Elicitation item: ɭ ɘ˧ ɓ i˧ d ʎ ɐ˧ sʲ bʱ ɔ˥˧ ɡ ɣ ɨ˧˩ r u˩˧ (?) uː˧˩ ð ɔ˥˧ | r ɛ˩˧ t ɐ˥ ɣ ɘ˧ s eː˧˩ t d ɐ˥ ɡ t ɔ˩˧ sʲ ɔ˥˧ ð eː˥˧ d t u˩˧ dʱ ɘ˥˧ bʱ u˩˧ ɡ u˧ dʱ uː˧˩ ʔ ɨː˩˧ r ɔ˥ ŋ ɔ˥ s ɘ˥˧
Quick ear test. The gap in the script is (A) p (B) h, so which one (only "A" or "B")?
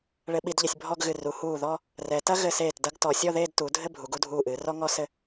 B